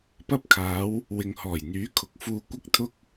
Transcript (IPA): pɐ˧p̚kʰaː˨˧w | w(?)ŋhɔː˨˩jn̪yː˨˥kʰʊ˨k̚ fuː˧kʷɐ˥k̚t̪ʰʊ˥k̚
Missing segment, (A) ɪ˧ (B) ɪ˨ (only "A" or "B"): B